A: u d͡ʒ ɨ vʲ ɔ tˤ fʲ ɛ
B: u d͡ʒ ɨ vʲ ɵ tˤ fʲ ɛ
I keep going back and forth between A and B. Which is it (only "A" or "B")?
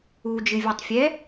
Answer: A